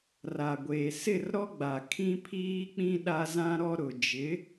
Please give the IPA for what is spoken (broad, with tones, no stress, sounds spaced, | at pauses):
r a˨ ɡʷ eː˨ s ɪ˦˨ r ɾ ɔ˦ ɡ͡b a˨ kʰ ĩ˦ pʰ iː˦ k͡p ĩ˦ ɗ a˦ z ã˦ ɾ ɔ˦ ɾ ʊ˨ d͡ʒ ɪ˨˦